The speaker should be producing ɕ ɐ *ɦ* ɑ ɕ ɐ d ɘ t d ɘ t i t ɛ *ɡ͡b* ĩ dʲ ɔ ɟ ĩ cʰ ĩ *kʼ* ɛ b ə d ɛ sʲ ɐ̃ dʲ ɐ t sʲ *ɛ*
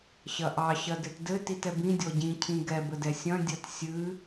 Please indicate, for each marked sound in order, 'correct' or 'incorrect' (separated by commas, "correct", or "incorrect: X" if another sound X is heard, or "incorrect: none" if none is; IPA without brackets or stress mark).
incorrect: ʔ, incorrect: b, incorrect: ɡ, incorrect: ɨ